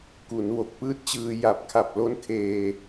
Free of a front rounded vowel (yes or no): yes